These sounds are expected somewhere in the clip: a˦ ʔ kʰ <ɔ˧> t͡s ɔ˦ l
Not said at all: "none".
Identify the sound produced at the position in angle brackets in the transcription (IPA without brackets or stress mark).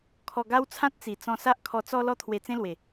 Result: ɔ˧